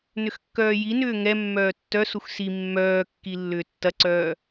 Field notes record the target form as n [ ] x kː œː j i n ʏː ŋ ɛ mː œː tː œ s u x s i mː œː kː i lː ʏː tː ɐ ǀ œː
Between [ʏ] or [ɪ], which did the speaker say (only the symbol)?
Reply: ʏ